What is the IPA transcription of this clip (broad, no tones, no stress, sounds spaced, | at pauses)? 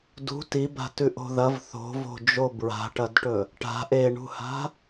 d ṳ t i b a̤ t ʉ ʔ o̤ ð ɐ v θ o̤ v o̤ d͡ʒ o b ɹ a̤ ʈ ɐ d ʈ ɵ | ʈ a̤ ʔ e ɳ ṳ h a̤